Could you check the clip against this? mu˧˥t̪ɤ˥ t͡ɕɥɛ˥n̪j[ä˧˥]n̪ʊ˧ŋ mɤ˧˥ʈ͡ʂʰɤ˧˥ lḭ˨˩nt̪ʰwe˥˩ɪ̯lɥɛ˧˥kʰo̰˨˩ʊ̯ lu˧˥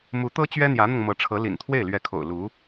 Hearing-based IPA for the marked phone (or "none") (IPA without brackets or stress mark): ä˧˥